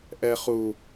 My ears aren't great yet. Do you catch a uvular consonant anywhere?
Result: yes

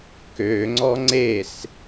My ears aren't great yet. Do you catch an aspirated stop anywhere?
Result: no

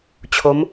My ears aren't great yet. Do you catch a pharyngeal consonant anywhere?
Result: no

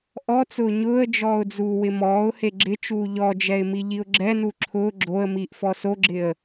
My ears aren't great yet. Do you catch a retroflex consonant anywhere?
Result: no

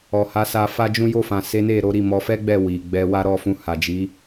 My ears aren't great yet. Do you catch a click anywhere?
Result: no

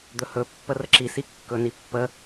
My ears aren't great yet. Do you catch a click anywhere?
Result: yes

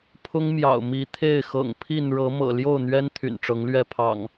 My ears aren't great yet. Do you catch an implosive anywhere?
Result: no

